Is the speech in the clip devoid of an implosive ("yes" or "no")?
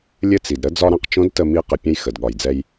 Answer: no